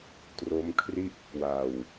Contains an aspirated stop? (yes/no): yes